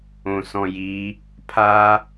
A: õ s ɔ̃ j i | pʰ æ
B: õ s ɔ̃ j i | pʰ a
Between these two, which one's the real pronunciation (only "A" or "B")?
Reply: B